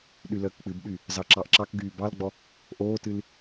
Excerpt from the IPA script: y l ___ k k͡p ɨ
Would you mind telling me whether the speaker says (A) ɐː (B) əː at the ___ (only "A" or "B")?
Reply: B